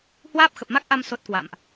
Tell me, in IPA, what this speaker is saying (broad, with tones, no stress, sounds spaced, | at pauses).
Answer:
h w aː˦˥ p̚ x ə˨˩ p̚ m a˦˥ k̚ ʔ a˧ m s o˦˥ t̚ k w a̰˧˨ m ʔ